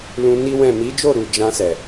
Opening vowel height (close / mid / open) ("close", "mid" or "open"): close